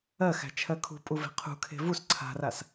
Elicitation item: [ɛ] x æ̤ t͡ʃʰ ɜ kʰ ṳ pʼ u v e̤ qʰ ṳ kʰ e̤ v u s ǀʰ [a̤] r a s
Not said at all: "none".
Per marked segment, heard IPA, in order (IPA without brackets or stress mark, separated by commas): ɜ, a̤